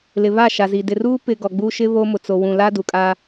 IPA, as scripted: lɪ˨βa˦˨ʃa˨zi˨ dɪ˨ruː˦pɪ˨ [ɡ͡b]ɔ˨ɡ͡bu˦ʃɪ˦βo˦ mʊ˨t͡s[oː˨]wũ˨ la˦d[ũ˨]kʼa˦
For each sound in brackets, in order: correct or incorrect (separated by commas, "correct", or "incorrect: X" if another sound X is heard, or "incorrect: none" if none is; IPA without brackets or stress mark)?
incorrect: ɡ, incorrect: o˨, incorrect: u˨